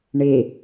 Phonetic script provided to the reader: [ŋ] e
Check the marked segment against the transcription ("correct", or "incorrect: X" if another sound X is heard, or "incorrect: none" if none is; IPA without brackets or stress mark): incorrect: ɳ